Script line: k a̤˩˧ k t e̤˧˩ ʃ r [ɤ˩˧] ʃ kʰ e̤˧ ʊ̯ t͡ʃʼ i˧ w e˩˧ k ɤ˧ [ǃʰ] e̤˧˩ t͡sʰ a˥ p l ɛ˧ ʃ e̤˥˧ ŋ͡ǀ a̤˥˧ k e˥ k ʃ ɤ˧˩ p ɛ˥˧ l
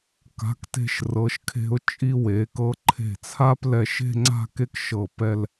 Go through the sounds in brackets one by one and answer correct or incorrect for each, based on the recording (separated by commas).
correct, correct